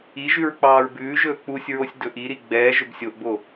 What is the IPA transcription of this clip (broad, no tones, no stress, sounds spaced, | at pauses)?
i ʒ ʉ ɹ k͡p ɑː ɹ b ʉː ʒ ɵː k͡p u sʲ ɹ o sʲ d ɵ ʔ i ɾ i ɡ͡b ɛː ʒ ɵ b sʲ o ʔ b o